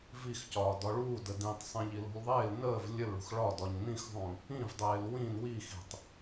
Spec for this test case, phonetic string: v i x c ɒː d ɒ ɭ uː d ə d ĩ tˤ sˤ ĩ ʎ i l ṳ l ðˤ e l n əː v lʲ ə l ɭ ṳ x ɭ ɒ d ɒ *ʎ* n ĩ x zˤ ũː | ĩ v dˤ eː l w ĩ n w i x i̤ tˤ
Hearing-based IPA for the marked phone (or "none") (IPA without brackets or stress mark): ɲ